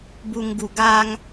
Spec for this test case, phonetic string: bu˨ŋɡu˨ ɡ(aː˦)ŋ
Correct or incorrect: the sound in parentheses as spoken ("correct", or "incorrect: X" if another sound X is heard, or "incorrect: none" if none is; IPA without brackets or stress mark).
correct